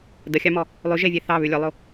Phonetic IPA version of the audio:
d ə xʲ ɑ m ɔ | lˠ ʉ ʒ e vʲ e θ ɑ β ʉ lʲ ʊ lˠ o

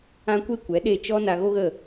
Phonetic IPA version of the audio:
ã˦ kʷ e˦ kʷ ɛ˨˦ ɗ e˦˨ t͡ʃ ɔ˦ n a˧ ɣ o˦ ɣ ə˦˨

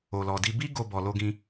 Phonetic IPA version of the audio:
o˨ l ɔ˨ d i˧ b i˦ ɡ o˧ b ɔ˨ l o˧ ɡ ĩ˧

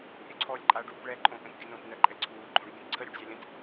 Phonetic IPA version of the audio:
ɾʲ ø ǀʰ ɔː lʲ ǃʼ a ɖ uː p ɭ ɛ ǃʼ õ ʔ ə̃ t ɡʲ ə n õ t n ɜ ǃʼ ɛ ǀʰ uː ɡ͡ǃ õ ɖ ɡʲ ə̃ t ǀʰ ə ɾʲ u ɖ zʲ ɑ lʲ ə̃ t

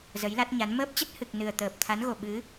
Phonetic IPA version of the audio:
z ə˨˦ j l a˦˥ t̚ ɲ a˨˦ n m əː˦˥ p̚ t͡ɕ ə˦˥ t̚ h ɨ˨˩ k̚ n ɨ˨˩ ə̯ t̪ əː˨˩ p̚ t̪ʰ a˨˦ n ɣ o˨˩ ɓ ɨ˨˦

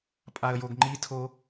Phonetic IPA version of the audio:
pʼ a ə̯ j o ɡ ŋ͡ǃ i tʰ o

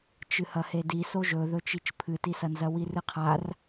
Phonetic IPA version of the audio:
t͡ʃ ɨ h ɐ h e d i s o ʒ ɵ ð ɵ t͡ʃ i t͡ʃ pʰ ɨ t i s ɐ n z ɐ w i r ɨ qʰ a r

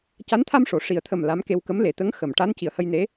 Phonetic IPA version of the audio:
c a˧˥ n t̪ʰ a˧ m ʂ o˨˩˨ ʂ i˨˩ ə̯ t̪ʰ ə˨˩ m l a˧˥ m k e˧ w k ə˧˥ m l e˨˩ t̪ ə˧˥ ŋ x ə˨˩˨ m ʈ a˧˥ n c i˨˩ ə̯ h ə˧ j n e˧˥

